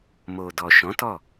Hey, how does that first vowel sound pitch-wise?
low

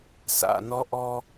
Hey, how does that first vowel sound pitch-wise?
low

